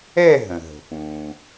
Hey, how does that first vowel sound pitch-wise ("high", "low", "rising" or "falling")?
falling